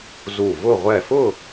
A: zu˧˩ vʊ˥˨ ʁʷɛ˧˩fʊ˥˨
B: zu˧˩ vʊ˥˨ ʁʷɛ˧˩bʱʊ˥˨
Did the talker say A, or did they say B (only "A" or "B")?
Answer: A